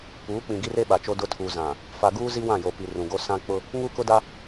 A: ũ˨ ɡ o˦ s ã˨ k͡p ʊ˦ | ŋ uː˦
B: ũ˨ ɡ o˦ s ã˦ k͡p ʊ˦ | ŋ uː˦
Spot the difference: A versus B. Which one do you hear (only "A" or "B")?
B